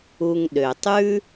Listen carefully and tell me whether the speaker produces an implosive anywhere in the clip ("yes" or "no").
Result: yes